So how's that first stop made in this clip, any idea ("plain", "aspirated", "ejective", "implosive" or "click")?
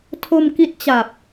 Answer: aspirated